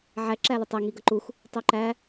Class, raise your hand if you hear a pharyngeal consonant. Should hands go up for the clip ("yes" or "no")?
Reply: yes